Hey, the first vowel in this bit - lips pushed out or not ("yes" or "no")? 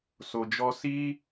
yes